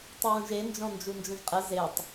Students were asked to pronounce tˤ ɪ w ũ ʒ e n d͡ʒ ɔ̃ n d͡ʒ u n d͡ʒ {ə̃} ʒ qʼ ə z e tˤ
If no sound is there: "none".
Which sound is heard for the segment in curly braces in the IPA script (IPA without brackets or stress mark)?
ə̃